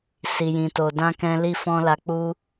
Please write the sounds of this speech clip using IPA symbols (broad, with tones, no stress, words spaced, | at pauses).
si˨jĩ˨ to˨ dã˧ kɛ̃˧li˧ fɔ̃˧la˧k͡pu˦